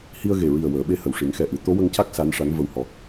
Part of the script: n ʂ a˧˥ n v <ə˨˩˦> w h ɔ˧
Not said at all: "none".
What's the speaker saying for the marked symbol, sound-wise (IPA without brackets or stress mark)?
ə˧